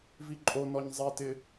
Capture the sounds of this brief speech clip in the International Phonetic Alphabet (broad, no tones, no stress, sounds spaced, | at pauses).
v i ǃʼ o n ɔ ɲ zˤ e t ɪ